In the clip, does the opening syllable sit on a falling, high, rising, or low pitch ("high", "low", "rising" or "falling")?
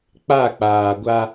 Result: falling